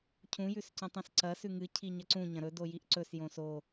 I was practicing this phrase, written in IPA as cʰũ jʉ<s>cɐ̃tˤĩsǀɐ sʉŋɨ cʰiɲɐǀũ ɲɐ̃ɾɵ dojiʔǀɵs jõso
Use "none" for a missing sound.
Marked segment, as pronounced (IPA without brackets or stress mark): s